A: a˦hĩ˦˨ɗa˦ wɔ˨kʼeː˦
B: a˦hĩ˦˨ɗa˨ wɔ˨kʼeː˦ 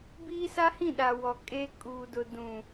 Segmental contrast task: B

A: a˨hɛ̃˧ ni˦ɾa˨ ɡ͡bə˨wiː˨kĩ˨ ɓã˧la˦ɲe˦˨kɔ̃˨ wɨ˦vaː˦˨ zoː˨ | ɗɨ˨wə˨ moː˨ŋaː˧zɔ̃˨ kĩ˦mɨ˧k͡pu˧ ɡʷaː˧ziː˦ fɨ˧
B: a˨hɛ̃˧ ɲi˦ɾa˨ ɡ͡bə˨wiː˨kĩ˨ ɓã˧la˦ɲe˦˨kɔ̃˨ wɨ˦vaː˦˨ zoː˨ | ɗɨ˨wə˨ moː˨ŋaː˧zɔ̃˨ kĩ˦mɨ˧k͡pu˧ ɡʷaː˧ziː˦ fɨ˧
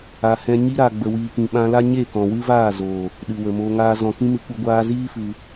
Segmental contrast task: B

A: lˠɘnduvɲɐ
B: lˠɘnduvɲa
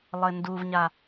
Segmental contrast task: B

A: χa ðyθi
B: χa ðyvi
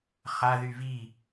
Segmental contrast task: B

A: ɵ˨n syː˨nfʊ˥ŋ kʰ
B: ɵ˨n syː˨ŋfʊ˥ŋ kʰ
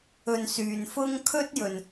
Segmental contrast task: A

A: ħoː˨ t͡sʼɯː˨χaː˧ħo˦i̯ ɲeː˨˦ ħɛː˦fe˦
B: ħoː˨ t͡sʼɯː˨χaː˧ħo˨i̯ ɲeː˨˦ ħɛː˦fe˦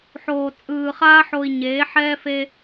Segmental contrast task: B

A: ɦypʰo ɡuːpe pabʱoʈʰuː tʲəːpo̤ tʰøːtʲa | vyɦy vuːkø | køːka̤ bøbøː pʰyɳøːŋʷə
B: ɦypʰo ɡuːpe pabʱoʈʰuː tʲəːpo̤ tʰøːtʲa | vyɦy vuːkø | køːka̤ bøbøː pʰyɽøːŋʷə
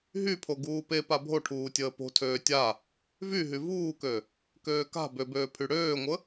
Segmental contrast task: B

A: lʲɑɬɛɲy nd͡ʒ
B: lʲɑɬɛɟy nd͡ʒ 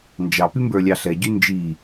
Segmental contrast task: B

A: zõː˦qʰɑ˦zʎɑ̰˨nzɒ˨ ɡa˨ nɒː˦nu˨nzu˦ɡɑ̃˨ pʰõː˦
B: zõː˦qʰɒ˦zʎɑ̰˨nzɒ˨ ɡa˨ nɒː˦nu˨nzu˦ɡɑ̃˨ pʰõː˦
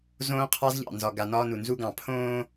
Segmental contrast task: A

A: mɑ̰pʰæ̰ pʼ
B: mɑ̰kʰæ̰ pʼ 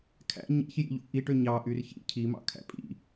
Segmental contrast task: B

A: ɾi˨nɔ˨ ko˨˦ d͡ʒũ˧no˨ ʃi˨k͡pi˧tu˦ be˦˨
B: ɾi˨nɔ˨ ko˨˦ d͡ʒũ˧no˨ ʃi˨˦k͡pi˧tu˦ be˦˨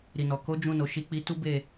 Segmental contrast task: B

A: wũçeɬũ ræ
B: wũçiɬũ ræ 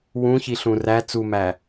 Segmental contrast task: B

